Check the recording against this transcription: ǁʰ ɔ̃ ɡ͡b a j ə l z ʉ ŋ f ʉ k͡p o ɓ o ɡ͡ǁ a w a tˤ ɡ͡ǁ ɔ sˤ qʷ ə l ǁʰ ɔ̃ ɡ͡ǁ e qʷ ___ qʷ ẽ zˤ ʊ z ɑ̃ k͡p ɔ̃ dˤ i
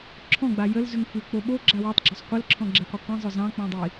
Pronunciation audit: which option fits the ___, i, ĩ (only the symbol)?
i